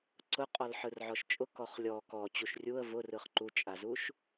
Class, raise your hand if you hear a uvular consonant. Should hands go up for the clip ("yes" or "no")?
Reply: yes